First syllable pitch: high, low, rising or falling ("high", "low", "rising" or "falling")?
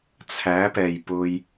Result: rising